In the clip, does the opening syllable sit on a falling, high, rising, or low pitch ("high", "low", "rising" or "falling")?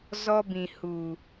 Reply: high